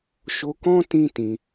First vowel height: mid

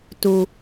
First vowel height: high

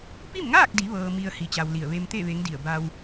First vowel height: high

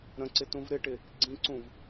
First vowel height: mid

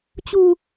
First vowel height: high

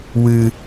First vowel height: high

